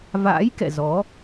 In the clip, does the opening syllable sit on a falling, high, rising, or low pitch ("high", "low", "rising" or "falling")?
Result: rising